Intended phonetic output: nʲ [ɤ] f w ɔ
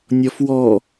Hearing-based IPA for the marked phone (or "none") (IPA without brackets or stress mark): ɔ